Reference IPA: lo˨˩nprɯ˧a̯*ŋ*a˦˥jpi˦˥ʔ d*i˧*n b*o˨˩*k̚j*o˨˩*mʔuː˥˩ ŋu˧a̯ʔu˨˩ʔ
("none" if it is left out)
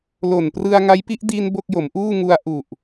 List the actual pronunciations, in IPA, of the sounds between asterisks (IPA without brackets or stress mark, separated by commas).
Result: ŋ, i˧, o˥˩, o˩˦